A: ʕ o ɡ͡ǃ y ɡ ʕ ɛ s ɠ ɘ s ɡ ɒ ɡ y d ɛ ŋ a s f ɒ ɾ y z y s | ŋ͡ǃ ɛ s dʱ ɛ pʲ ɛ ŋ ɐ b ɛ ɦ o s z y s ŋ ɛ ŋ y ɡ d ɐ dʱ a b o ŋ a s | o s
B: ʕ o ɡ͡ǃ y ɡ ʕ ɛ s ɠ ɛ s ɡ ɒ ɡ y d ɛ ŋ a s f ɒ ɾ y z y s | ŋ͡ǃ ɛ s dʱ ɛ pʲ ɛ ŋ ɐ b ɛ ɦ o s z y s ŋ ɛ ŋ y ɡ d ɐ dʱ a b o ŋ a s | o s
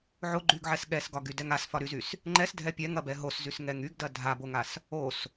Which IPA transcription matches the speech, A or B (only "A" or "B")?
B